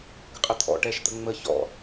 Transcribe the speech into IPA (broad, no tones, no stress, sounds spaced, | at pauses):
ɡ ə qʼ ə t̪ʰ ɔ̰ ʈ ɛ ʃ t̪ ə ŋ͡m ə ç ɔ̰